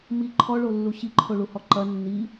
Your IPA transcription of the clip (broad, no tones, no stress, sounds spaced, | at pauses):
m i ǃʰ ɔ ɭ o lː u ɕ i ǃʰ o ɭ u h ɔ ǃ ɐ nː i